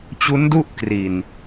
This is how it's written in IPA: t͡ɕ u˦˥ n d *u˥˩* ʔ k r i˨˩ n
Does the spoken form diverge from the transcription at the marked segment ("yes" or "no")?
no